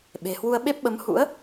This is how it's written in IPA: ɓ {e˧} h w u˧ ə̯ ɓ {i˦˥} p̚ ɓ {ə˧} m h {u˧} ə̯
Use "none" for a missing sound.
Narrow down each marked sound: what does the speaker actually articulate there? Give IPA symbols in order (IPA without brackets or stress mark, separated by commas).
e̤˨˩, e˦˥, ə˨˦, ṵ˧˥